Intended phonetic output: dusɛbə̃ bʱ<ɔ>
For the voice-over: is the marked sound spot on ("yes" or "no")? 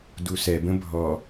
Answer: yes